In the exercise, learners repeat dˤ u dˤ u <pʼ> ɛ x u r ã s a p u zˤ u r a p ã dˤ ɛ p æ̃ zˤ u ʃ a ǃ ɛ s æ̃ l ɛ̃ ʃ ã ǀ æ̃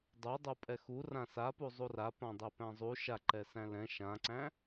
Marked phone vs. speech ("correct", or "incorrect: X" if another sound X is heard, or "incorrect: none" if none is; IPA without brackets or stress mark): correct